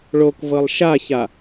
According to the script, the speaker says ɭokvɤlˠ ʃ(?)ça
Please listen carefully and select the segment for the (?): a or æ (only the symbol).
a